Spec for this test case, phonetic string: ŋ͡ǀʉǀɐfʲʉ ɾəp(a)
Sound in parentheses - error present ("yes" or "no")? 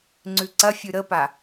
no